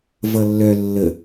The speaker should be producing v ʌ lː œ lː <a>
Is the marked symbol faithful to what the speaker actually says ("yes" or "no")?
no